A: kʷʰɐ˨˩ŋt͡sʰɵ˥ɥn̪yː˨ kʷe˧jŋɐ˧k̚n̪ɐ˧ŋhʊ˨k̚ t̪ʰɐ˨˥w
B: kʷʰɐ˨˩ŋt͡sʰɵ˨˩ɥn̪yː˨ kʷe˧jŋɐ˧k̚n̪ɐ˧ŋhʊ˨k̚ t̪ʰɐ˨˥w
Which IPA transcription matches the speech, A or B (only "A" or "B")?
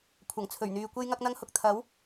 B